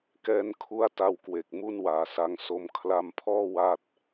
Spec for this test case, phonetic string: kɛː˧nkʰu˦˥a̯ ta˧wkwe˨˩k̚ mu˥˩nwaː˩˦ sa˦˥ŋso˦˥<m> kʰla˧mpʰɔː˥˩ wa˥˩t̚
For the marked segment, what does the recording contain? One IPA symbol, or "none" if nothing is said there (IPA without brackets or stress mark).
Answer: m